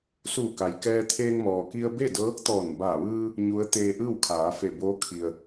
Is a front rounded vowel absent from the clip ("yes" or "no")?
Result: yes